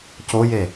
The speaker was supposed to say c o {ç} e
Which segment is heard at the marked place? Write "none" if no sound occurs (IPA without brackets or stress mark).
j